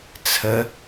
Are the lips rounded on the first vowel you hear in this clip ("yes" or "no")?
no